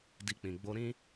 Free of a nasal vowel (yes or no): no